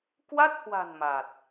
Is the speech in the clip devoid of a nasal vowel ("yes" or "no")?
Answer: yes